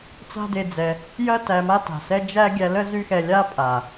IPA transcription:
t͡s a̤˦ d e˧ d͡z ɛ˧ | j ɐ˦ t æ˧ m a˦ t a̤˨ s ɛ˦ d͡ʒ æ˦ ɡʲ æ˧ l ə˦ z y˦ x ɛ˧ lʲ a˦ pʼ a˨

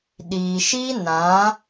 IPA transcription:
ɗ iː˨ ʃ i˦ n ã˨˦

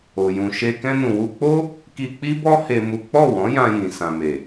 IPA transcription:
o˨ j ũ˨ ʃ e˧ k ɛ̃˧ n ũ˨ w u˧ k͡p o˦ | k i˧ k͡p i˦ b ɔ˦ h e˦ m u˦ k͡p ɔ˦˨ w ɔ̃˨˦ j ã˧ j ĩ˨ s ã˨ m e˨

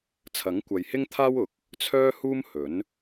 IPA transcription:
t͡sʰ ɐ˨˥ ŋ kʷ ɐ˨ j h ɪ˥ ŋ t̪ʰ aː˥ w ʊ˨˥ k̚ | t͡sʰ œː˥ h uː˥ m h ɵ˨˥ n

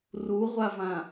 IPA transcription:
r u ʁʷ a v ã

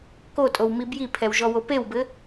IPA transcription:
k o tʼ o w m i b j i pʰ ɛ w ʒ ɔ w o p e w b ɘ

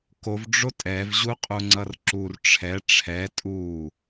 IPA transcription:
k o v ɖ͡ʐ o tʼ ɛ v ʑ u qʼ u ŋ͡ǀ ʌ r ǁ u r ʈ͡ʂʰ ɛ ʈ͡ʂʰ ɛ tʼ u

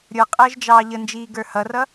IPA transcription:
ɾʲ ə˞ qʼ əː ʒ d͡ʒ ɑː ʎ ə n d͡ʒ iː ɡ ə˞ h ʌ r ʌ

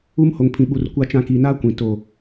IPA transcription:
u˦ m h o˨ ŋ pʰ ĩ˨ ɓ u˨ r kʷ a˦ t͡ʃ ã˦ k i˨ n a˦ kʷ ĩ˨ t o˦˨

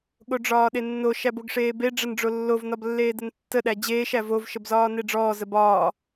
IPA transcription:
ɠ o ɖ͡ʐ ɒː ɗ e nː o ʃ æ b o ɡ ʂ eː b e ɖ͡ʐ ə n ɖ͡ʐ o lː o v n ɒ b lː eː d ə n tː ə ɗ æ d͡ʑ eː ʃ æ v o v ʃ ə b z ɒː n e ɖ͡ʐ ɔː z ə b ɒː

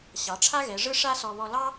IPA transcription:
ɕ ɑ˩˧ ʈ͡ʂʰ a˥ ɣ ɛ˩˧ ʐ ɯ˥ ʂ a˥ s ɔ˧ β ɔ˧ l ɑ˥

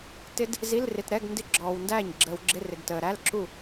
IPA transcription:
t ɪ˦˥ d | z i˧˥˧ l r ɪ˨ t ɾ ɛ˧˥˧ ɡ n d ɪ˥˩ ɡ͡ǁ ɔː˨ w n d æː˥˩ ɲ ɡ͡ǁ əː˨ w ɡ͡ǁ ɪ˧˥˧ r ɪ˨ ɡ t əː˨ ɾ æ˧˥˧ l ǁ u˥˩

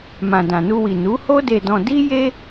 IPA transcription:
m ã˨ d ã˨ n u˧ w i˨ n u˨˦ h o˦ d e˧ d ɔ̃˧ d i˦ j e˦

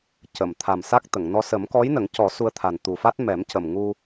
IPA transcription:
c ə˨˩˨ m t̪ʰ a˨˩ m s a˦˥ k̚ t̪ ə˨˩˨ ŋ n ɔ˧ s ə˨˩˦ m k ɔ˧˥ j n ə˨˩˦ ŋ c ɔ˨˩˦ s u˧ ə̯ t̪ʰ a˨˩ n t̪ u˨˩ f a˦˥ t̚ m ɛ˨˩˦ m c ə˨˩ m ŋ u˧

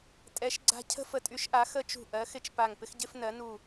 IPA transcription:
tʼ ɛ˨˦ ʃ ɡ͡ǀ a̤˦ cʰ ə̤˦ f ə˨˦ tʼ y˨˦ ʃ ʔ a˨˦ x ə˦ t͡ʃ ṳ˧˩ ʔ ɜ˨˦ x ɪ˦ t͡ʃ p a˧˩ ŋ p ɪ˦ x ɟ ɪ˦ f n ɜ˨˦ n u˧˩

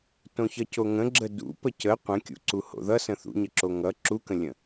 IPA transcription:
t õ ç ʌ c o ŋ ə̃ ɡ͡ǁ ə d ṵ p ə c ə qʷ ə̃ kʲ ṵ ǀ u h o̰ ð ʌ s ə̃ θ ṵ ɲ ə ǁ o ŋ ʌ ǁ u k ə̃ lʲ ə̃

